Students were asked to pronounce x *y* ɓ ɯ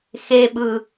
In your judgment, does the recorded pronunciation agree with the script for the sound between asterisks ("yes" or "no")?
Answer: no